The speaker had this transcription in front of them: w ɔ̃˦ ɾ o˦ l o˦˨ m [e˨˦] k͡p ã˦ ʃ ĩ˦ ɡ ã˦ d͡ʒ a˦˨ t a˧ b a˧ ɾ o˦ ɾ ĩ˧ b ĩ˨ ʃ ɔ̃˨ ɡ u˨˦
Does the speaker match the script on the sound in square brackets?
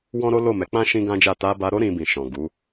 no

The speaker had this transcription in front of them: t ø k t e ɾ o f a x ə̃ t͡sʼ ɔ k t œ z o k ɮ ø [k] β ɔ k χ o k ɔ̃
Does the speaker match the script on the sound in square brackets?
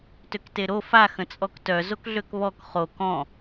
yes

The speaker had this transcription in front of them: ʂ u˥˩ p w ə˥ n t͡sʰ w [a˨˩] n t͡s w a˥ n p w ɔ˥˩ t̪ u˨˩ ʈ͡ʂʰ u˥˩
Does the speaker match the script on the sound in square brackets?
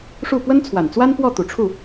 yes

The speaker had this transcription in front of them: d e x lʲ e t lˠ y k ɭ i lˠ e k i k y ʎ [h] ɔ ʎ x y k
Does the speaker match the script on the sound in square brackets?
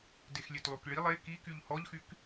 yes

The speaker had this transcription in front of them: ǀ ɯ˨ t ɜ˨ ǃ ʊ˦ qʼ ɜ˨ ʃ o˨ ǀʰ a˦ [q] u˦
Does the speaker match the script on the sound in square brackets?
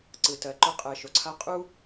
no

